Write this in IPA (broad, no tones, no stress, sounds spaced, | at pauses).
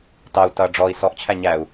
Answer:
t ɑ u̯ t ʌ ɖ͡ʐ ɔ i̯ s ɔ ʔ t͡ɕʰ æ ɲ æ u̯